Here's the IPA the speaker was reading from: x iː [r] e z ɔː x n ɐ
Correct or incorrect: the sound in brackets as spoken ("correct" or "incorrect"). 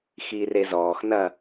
correct